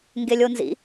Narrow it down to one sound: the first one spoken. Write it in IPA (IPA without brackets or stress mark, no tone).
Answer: ŋ